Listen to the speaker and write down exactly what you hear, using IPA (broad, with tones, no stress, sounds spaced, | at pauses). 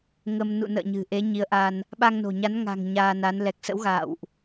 ŋ ə˧ m n ṵ˧˨ n ə̰ː˧˨ ɲ ɨ̤˨˩ ʔ e˨˦ ɲ i˨˦ ə̯ ʔ a˧ n | ɓ a˧ ŋ n o̤˨˩ ɲ a˨˦ n ŋ a̤˨˩ ŋ ɲ aː˧ n a˨˦ n l ɛ˨˩ k̚ s ə̰˧˥ w ɣ a̰ː˧˨ w ʔ